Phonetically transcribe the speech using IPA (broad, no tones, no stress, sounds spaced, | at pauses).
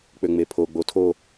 k͡p ø ŋ͡m e pʰ o ɡ͡b o tʰ o